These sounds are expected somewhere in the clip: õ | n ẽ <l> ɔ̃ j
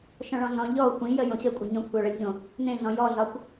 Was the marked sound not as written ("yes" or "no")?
yes